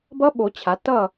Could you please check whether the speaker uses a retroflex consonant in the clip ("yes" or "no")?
no